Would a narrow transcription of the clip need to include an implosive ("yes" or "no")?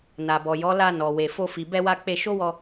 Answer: no